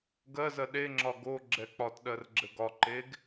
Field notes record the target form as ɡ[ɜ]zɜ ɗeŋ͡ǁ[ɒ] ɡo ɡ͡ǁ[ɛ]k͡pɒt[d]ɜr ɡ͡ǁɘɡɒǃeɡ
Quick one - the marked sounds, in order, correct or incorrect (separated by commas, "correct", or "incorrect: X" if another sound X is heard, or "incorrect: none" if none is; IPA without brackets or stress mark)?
correct, correct, correct, incorrect: ɗ